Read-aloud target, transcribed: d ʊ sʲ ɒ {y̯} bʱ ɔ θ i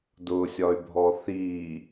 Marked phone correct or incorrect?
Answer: correct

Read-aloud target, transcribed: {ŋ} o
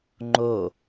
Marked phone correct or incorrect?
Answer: incorrect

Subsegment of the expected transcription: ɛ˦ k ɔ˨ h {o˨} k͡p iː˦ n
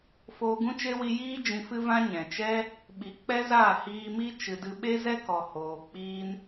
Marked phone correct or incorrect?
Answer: incorrect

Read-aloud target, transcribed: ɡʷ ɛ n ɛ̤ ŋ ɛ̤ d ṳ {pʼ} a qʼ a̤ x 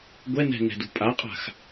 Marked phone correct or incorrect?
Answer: correct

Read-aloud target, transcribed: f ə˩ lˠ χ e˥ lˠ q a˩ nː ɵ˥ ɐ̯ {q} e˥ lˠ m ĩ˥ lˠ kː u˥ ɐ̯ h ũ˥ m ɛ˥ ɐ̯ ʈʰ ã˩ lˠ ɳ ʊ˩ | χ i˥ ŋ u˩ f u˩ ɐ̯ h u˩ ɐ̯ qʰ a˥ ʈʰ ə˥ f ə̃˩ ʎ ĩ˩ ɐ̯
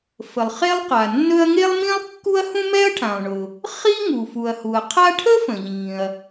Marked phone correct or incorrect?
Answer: incorrect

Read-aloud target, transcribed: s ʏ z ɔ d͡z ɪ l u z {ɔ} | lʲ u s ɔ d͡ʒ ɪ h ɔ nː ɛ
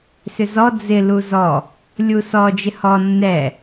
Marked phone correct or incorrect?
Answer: correct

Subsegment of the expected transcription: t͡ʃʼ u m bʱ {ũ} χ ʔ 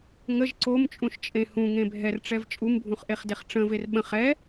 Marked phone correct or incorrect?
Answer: correct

